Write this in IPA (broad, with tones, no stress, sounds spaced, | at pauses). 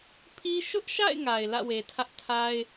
pʰ i˦ ʃ ʊ˦ ʔ ʃ a̰˦˨ ɪ̯ ŋ a˨ ɪ̯ l ä̰˦˨ w e˨ tʰ ä˦ ʔ tʰ a˦ ɪ̯